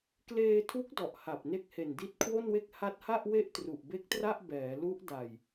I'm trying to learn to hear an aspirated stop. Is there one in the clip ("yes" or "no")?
yes